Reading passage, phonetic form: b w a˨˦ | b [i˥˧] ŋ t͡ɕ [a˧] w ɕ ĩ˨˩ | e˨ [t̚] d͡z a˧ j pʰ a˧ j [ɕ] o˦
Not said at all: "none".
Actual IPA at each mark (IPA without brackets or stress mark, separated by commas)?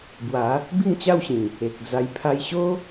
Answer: i˥˧, a˥˧, k̚, ɕ